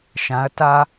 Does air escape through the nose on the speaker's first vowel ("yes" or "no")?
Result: yes